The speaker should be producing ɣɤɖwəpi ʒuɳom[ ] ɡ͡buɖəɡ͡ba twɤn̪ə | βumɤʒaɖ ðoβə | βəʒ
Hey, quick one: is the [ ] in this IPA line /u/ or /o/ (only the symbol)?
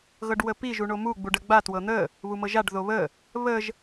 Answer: u